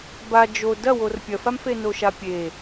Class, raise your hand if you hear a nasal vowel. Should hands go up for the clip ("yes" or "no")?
no